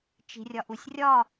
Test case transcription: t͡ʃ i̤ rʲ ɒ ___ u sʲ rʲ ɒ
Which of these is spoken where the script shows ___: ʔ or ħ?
ʔ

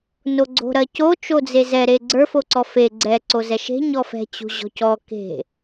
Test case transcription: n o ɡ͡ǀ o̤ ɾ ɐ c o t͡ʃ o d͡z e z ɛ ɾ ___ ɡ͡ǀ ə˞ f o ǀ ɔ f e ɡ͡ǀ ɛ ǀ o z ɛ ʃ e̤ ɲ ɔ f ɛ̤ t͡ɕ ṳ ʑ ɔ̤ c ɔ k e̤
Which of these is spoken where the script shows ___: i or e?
e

